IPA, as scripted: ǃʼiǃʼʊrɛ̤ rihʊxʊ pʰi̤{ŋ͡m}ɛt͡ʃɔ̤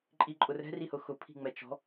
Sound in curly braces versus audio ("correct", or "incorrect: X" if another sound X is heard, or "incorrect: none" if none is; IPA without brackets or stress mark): correct